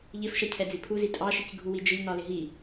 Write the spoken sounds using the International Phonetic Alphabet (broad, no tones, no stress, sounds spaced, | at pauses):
ʎ ɪ f ʃ ʌ cʰ ɛ d͡z i pʰ u z i tʼ ɑ ʃ i c ɡʱ u w i d͡ʒ ɪ ʎ n ɒ l ɪ ɦ i